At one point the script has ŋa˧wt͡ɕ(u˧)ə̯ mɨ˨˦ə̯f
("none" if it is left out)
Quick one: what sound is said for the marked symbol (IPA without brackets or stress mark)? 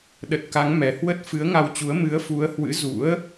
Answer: u˨˦